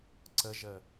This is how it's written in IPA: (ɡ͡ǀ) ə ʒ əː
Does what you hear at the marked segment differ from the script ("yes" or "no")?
yes